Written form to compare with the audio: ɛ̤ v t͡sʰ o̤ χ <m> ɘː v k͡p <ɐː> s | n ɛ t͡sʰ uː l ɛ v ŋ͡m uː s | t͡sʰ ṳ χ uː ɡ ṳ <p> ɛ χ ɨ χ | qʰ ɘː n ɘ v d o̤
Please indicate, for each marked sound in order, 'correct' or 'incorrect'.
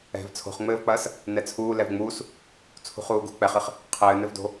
incorrect: ŋ͡m, correct, incorrect: k͡p

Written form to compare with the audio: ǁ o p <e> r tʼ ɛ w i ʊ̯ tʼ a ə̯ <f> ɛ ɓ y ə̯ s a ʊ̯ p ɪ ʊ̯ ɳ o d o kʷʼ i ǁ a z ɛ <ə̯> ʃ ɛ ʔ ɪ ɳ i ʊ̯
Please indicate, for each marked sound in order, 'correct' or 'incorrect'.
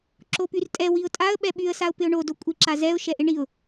incorrect: y, incorrect: ɓ, incorrect: ʊ̯

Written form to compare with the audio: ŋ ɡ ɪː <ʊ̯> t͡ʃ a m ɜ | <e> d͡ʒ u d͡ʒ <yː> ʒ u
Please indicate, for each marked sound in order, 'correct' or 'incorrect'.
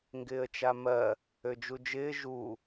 incorrect: ə̯, incorrect: ø, incorrect: ɪː

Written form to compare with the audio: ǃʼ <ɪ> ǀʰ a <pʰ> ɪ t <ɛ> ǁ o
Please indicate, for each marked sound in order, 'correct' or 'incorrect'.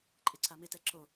correct, incorrect: m, correct

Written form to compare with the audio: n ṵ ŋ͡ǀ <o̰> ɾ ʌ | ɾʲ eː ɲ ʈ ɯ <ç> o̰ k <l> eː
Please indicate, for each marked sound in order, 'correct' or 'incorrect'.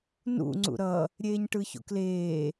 incorrect: ṵ, correct, correct

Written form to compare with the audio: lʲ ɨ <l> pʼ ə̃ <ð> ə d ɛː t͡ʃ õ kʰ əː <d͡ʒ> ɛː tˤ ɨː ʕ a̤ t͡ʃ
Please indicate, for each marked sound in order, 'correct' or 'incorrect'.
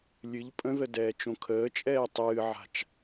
incorrect: ʎ, correct, incorrect: t͡ʃʼ

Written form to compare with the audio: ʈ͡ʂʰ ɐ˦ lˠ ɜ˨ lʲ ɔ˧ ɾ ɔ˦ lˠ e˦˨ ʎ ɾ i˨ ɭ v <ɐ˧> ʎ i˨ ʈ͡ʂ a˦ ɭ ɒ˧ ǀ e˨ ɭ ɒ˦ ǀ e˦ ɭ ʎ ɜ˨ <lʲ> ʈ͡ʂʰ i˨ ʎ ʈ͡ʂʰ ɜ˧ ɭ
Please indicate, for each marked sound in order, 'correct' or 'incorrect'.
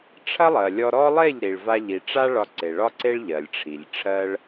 incorrect: a˧, correct

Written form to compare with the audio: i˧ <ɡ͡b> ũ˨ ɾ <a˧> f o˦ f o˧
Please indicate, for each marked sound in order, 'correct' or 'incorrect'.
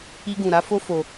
incorrect: ɡ, incorrect: a˨˦

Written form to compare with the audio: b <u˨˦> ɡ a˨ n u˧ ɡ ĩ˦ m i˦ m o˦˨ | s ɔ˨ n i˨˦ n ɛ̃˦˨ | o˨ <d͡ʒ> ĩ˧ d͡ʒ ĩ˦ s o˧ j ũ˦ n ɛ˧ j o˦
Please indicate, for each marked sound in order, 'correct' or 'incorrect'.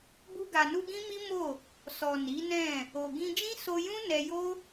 incorrect: u˧, incorrect: ɡ

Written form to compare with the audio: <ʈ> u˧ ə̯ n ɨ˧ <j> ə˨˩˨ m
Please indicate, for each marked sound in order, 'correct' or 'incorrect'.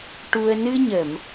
correct, incorrect: ɲ

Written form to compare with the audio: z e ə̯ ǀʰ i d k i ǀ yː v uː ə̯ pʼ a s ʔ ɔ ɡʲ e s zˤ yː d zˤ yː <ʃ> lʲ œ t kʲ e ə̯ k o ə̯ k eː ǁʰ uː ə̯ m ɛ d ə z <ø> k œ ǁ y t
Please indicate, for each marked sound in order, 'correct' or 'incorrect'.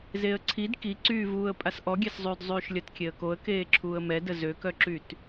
correct, correct

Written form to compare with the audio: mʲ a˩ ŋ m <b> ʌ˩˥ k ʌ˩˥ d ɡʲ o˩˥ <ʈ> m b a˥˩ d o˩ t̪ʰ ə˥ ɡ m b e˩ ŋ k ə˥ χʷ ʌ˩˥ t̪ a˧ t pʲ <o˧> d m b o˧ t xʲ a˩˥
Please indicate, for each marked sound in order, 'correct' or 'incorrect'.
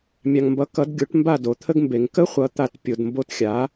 correct, correct, incorrect: o˩

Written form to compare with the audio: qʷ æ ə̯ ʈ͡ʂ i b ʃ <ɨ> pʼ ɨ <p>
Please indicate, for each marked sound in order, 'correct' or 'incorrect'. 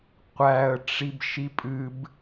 incorrect: i, incorrect: b

